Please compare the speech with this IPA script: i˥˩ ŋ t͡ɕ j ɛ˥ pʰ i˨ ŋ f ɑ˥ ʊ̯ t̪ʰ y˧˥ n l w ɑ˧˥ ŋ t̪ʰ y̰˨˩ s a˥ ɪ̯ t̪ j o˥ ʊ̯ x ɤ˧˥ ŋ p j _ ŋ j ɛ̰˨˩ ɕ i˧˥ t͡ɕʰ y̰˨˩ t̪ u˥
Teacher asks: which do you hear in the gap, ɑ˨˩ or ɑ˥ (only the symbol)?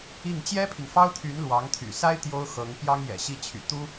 ɑ˥